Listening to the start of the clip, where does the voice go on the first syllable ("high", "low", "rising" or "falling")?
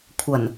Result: low